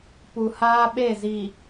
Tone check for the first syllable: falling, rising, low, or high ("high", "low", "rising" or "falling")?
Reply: low